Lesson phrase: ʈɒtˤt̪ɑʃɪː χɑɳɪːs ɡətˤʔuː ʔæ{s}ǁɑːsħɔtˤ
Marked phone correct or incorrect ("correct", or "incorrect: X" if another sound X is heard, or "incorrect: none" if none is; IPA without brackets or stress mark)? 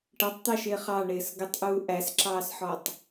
correct